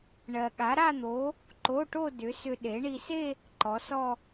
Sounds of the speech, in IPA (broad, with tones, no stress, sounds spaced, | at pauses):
ɳ ɜ˧ ɠ a˨˥ ɾ a˥˧ n̪ o˨˥ | ǃ o˧˥˧ ʈ o˥˧ d ʏ˨˥ s ʏ˧ ɗ e˨˥ ɳ i˧ s e˥˧ | ǃ ɔ˨˥ s ɔ˥˧